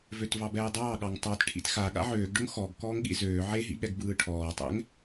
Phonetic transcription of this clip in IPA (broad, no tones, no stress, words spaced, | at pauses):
vøtvɑbɛːdˤɑː ɠɑŋtˤɑt ʈʰḭtxa ɠa̰ʕøːɡ ɖʊŋxɔɡ kɔːŋɠḭzøː ʕeɦḭɠɛɡ bɯːʈʰɔːtˤɛ̰ŋ